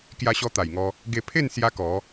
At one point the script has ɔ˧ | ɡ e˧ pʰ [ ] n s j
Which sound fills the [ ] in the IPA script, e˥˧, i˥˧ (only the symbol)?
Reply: e˥˧